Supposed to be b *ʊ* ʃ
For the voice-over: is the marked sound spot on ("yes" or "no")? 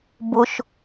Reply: yes